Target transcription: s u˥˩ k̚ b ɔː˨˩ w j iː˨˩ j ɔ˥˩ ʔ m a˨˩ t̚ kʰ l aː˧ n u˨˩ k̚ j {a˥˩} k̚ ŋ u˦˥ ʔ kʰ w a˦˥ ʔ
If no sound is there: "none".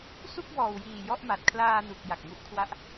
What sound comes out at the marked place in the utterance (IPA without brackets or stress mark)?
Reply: a˨˩